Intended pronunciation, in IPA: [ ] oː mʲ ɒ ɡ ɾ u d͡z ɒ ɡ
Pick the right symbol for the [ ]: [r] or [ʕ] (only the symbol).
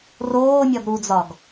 r